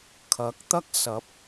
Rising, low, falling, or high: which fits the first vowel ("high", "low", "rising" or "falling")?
rising